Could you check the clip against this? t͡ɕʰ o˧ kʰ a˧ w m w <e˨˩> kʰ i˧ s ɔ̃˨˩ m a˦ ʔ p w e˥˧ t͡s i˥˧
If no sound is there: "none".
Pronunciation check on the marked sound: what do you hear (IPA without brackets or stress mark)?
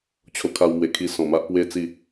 e˨˩